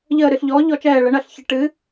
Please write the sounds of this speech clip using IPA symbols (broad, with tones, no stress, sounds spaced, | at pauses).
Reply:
ʎ əː˧˩ ɾ ɨ˧˩ ɬ ʎ ɔː˩˥ ʎ ɔ˧˩˧ t͡ʃ ɛː˧˩ ɭ ə˩˥ ɳ ɐ˧˩˧ ɬ ç ə˩˥ ʈ ɨ˩˥